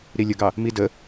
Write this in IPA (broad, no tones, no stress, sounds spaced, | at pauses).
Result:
ɾ i lʲ ə ɡ ɑ | m i d ə